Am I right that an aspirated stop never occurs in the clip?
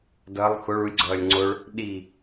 yes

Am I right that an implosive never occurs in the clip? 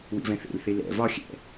yes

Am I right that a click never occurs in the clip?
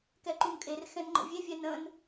no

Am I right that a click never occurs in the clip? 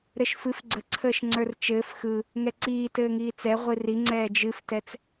no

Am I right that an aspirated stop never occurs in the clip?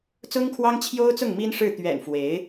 no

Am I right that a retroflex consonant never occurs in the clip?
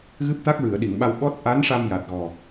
no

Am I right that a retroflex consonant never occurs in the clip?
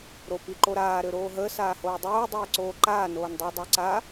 yes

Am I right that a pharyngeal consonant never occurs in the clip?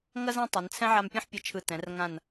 no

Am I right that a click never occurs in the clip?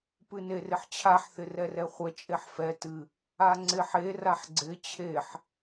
no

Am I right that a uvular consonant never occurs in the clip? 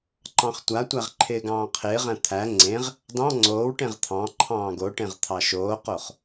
no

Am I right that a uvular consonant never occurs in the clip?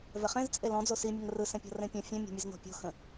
no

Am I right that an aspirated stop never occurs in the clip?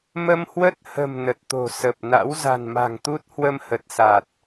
yes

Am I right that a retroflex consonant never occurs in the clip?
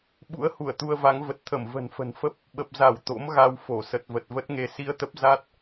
yes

